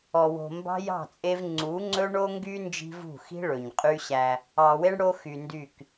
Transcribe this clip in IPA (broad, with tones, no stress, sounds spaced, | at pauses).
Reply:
ɔ˨ w o̤˨ m b ɑ̤˦ j ɑ̤˦˨ t͡sʼ e˦ v ŋ͡ǀ u˨˦ ŋ͡ǀ ɵ˦ ɳ o˦ ŋ ɡ y˦ n d͡ʒ i̤˦ v ṳ˦˨ x i̤˦ ɭ ɵ˨ ɲ qʼ y˦ ɕ æ˦ | ɑ˨ w e˦ ɳ ɽ o˦ x y˨ n d y˦˨ k